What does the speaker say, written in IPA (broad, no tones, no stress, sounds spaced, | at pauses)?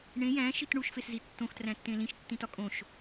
ɳ ẽ j æ̃ ʃ i t ɳ u ʃ f e s z i tː õ x t r æ̃ tː ẽ l ĩ ʃ tː ĩ t ɒ kʼ õ ʃ